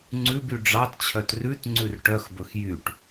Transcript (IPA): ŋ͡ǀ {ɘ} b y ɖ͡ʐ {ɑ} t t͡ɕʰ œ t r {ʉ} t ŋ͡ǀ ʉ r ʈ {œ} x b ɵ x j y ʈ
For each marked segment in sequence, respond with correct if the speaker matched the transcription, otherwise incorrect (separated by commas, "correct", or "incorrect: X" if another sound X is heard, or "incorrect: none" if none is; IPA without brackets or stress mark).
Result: incorrect: ʉ, correct, correct, correct